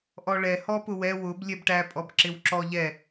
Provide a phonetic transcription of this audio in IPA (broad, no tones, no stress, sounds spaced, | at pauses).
ʔ ɔ ɭ ɛ h ɔ p ʊ w ɛ w ʊ b lʲ ɛ b ʈ æ pʼ ɔ b ǁ ɪ w ǁ ɔ ʎ ɛ